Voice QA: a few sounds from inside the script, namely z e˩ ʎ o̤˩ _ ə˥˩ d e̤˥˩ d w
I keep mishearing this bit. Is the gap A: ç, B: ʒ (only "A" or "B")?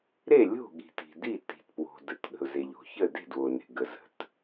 A